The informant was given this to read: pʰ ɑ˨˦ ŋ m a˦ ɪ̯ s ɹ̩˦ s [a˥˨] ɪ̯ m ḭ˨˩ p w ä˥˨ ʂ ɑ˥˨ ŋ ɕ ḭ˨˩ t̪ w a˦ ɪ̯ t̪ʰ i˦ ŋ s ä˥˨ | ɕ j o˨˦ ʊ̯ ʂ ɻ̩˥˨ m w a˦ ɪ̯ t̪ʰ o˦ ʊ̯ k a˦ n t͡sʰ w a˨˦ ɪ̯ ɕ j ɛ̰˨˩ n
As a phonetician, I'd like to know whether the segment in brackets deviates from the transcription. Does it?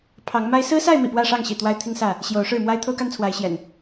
no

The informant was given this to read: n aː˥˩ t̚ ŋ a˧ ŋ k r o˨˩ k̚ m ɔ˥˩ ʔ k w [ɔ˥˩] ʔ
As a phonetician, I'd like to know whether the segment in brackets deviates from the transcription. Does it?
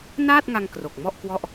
no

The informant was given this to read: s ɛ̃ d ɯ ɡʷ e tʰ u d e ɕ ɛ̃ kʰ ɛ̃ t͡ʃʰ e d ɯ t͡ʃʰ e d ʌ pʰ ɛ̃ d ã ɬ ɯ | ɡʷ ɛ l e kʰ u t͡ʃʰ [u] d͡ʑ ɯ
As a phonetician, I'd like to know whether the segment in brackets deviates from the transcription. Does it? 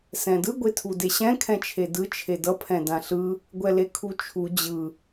no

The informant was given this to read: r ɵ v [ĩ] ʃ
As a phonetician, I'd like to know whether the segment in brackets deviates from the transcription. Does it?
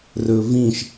no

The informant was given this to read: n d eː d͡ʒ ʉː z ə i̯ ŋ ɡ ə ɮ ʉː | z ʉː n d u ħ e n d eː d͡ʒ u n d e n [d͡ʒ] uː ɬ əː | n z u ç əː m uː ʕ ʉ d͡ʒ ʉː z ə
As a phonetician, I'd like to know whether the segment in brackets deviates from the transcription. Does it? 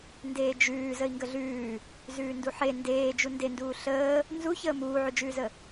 yes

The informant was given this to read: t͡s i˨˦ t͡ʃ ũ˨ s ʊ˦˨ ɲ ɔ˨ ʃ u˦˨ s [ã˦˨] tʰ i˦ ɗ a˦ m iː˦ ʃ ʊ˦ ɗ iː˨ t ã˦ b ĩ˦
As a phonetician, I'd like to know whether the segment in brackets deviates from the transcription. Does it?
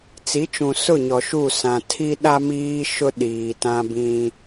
yes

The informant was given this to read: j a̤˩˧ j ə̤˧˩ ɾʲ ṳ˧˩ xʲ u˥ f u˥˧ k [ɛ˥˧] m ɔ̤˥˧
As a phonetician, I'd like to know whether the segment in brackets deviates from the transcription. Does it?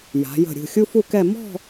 no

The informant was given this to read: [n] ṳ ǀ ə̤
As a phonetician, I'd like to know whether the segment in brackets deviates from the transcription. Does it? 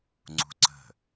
yes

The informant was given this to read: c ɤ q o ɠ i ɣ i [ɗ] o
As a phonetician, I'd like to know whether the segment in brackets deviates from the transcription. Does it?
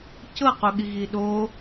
no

